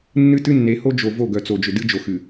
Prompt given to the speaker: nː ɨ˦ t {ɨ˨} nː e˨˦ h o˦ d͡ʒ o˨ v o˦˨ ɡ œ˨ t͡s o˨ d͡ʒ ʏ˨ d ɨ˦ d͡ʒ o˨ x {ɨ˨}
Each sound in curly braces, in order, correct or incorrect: incorrect: ɨ˦, correct

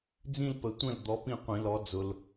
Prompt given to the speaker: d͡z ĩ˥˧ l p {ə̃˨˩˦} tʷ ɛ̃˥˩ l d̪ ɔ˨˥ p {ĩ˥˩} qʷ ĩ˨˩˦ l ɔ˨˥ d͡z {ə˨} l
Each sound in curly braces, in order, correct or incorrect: incorrect: ə˨˩˦, correct, incorrect: ʊ˨

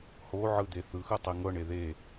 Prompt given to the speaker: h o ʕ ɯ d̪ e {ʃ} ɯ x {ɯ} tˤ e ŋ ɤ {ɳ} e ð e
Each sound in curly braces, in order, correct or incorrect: incorrect: θ, correct, correct

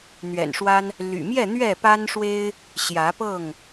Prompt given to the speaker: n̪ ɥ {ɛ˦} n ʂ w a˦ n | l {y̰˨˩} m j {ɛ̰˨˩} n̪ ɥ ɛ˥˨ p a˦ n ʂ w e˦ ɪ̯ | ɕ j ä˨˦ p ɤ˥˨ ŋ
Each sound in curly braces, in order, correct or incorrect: incorrect: ɛ̰˨˩, correct, incorrect: ɛ˥˨

